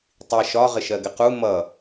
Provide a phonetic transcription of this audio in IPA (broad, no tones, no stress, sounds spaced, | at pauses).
tˤ i ʃ ɒ ʁ ɪ ʃ ɜ ɡ ɪ q u m ʌ